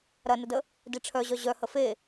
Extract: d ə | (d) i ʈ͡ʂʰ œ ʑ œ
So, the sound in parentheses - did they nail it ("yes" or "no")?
yes